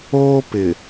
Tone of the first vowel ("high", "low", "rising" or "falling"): high